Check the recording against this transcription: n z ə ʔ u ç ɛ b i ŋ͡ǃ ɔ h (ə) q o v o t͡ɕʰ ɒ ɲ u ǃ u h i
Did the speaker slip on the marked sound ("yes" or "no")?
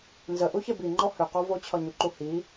yes